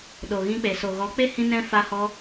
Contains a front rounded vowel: no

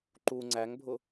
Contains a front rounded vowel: no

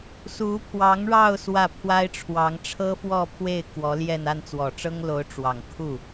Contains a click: no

